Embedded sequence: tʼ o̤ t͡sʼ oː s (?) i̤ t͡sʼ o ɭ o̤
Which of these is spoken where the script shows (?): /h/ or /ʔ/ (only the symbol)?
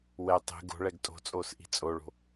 ʔ